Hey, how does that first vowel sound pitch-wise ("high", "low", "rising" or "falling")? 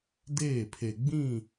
falling